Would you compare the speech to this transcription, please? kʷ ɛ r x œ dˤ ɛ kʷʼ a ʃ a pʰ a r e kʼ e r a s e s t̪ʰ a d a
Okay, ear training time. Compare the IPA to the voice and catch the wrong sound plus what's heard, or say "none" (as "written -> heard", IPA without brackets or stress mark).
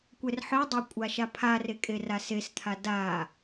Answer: x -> ħ